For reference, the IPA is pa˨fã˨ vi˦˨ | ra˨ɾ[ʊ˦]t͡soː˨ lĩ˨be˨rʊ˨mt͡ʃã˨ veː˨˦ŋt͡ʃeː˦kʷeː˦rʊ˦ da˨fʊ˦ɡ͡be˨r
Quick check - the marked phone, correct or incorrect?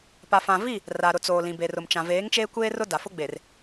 incorrect